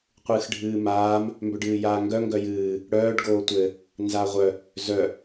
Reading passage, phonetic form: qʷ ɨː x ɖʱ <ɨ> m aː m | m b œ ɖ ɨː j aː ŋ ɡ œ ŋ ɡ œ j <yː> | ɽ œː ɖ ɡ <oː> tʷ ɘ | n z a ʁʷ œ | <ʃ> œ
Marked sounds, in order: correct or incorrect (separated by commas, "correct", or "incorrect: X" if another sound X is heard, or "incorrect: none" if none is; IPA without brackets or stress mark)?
incorrect: ɨː, incorrect: ɨː, correct, incorrect: z